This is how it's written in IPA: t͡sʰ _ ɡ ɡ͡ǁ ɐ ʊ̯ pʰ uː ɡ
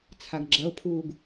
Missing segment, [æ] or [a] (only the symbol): a